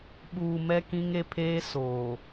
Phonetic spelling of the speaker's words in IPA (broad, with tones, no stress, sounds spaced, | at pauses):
ɓ uː˨ m ɛ˦ k ĩ˦ ŋ e˦ pʰ eː˦ s o˨